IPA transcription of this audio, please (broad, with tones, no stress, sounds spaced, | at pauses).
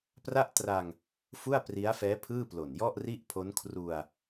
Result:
p r a˥˩ ʔ t r a˧ ŋ | f u˥˩ a̯ p r i˦˥ a̯ f ɛː˦˥ pʰ ɯː˥˩ p l o˨˩ n j ɔ˥˩ ʔ r i˥˩ ʔ pʰ o˦˥ n kʰ r u˧ a̯